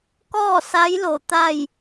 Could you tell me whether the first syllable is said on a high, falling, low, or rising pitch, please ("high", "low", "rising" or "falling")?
falling